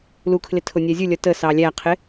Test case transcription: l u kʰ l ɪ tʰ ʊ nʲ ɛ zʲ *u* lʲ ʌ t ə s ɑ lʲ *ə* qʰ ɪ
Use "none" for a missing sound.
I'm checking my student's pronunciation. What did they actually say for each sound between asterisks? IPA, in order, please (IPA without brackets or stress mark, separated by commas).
u, æ